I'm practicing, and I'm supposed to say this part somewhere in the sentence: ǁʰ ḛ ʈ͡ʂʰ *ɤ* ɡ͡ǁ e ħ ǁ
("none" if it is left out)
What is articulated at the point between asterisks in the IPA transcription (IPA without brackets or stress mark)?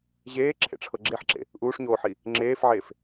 ɤ